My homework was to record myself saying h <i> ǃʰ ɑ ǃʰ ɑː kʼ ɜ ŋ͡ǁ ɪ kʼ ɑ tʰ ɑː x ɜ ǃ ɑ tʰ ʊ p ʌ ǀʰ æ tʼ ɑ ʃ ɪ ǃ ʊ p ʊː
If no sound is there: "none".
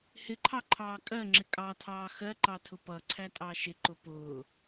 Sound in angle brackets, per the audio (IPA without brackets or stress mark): ɪ